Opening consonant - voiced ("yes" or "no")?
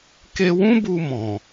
no